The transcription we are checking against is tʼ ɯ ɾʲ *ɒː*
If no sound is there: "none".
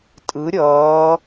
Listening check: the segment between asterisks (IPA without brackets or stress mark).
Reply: ʌː